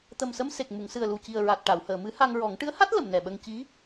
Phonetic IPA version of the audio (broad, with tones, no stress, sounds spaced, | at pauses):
t̪ ə˨˩ m s ə˧ m s e˨˩ k̚ m u˨˩˨ ŋ s ɨ˨˩ ə̯ l u˨˩ c i˨˩ ə̯ ɹ a˨˩ t̚ ʈ a˨˩˨ w h əː˨˩˨ m ɨ˧˥ h a˧ ŋ ɹ ɔ˨˩˦ ŋ ʈ ɨ˧˥ ə̯ h a˦˥ t̚ l ə˨˩˨ m n ɛ˨˩ ɓ ə˧ ŋ c i˧˥